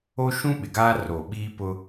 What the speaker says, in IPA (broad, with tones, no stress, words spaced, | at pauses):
o˦ʃũ˦ɓɪ˨ɡaː˦ ro˨ ɓiː˦pʊ˦